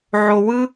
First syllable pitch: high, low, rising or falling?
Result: low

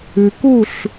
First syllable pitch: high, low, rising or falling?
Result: low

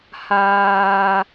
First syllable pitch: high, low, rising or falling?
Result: high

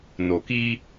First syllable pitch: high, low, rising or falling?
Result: low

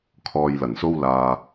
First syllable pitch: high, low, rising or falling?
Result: low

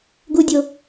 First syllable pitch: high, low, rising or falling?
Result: high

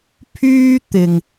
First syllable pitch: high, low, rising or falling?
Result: high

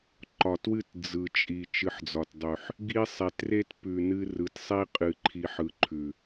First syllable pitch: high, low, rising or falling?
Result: low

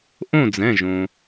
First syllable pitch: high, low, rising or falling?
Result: falling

